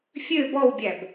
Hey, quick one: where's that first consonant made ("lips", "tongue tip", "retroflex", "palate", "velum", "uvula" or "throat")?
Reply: lips